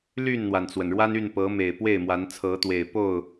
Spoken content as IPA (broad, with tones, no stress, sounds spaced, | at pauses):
l y˥˨ n n̪ w a˩ n t͡s w ə˩ n ɻ w a˦ n y˥˨ n p ɤ˨˦ m e˨˩ ɪ̯ p w e˥˨ ɪ̯ m w a˨˦ n t͡sʰ ɤ˨˦ t̪ w e˨˩ ɪ̯ p o˥˨ ʊ̯